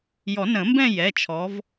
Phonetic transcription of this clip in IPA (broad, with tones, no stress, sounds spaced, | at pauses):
j ɔ˨˩˦ n ə̃˨˩˦ m b ɛ̃˥˧ j ɛ˩˧˩ t͡ʃʰ ɔ˨˦ v